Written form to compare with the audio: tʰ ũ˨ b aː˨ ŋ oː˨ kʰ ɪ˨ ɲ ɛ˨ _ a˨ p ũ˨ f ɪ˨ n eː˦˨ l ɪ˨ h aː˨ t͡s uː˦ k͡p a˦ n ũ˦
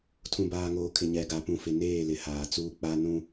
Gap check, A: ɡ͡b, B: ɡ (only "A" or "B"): B